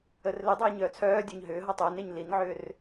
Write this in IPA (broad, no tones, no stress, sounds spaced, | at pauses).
ə r l ɪ dˤ aː ɲ œː t͡sʰ œː dʲ ø ɲ ɦ ʏː ɦ ɔ tˤ ʏː n e ɲ l i n ʕ ʏː r